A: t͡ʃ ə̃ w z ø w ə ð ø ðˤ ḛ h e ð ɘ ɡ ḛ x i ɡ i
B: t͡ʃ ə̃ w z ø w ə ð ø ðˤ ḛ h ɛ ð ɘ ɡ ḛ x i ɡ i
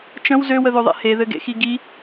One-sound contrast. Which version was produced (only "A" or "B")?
A